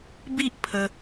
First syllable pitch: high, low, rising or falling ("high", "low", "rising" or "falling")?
high